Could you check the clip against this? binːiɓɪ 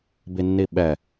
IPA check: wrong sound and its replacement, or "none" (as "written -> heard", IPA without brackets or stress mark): ɪ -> ɛ